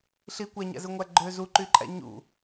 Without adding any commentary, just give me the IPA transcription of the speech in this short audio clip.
ɬ i kʷ æ ɲ æ̰ z ɯ ŋʷ æ ɡ͡ǃ ø z u ǃ y ǃʼ æ̰ ɲ ṵ

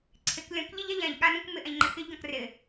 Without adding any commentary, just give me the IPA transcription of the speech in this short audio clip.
ǀʰ ɪ k lʲ ɔ̃ k ʎ ɪ ʎ a ʎ ã ʎ ɠ a n ũ k m ɪ ʔ ã ʎ ŋ͡ǃ ɪ x ɪ ʎ ɡ ɔ̃ k r ɪ

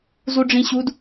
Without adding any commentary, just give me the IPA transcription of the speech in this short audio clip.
z u ɖ͡ʐ ĩ ɕ u d

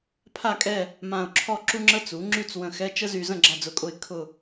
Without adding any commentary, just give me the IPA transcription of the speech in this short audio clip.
pʰ a˥˧ kʼ ɛ˥˧ | m ã˧ ʊ̯ ǁʰ ɔ˥˧ ǁ u˥ ŋ͡ǁ ə˥ t͡s u˩˥ ŋ͡ǁ y˥˧ t͡s w ə̃˧ x ɛ˧˥˧ t͡ʃ ə˥ z y˧ z ə̃˥˧ ɡ͡ǁ a˥˧ d͡z ʊ˧˥˧ kʼ ʊ˥˧ ɪ̯ kʰ ʊ˥˧

